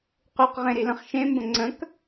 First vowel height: high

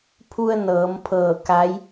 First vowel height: high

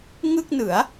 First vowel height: high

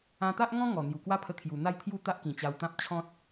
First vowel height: low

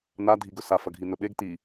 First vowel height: low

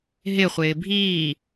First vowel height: high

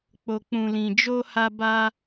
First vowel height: mid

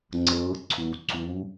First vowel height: mid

